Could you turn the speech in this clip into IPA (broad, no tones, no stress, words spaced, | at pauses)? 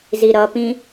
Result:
ziɾʌpĩ